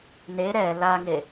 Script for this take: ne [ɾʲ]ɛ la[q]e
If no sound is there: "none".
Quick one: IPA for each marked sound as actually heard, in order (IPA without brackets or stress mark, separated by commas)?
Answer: ɾ, ŋ